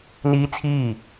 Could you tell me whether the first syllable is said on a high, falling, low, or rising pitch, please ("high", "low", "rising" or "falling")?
high